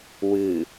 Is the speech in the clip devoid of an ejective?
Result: yes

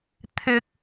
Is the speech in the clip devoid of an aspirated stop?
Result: no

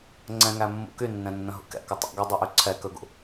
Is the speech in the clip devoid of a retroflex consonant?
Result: yes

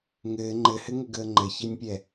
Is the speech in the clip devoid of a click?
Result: no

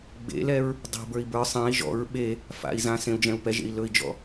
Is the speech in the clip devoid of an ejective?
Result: yes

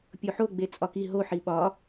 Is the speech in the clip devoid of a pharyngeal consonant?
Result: no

